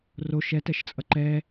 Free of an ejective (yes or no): no